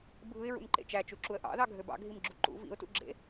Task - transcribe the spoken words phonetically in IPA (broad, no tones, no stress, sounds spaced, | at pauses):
bʱ ɯ ɪ̯ ɹ ṵ n ǃ ḛ t͡ʃ æ t͡ʃ u ǁ u ə̯ ʔ ɑ̰ ð ɑ ɡʱ ø b ɑ̰ ɡʱ i m ɡ͡ǁ u ǃ ṵ v ḭ ʊ̯ t ṵ ɡ͡ǁ ḛ